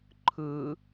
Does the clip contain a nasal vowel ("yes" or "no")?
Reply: no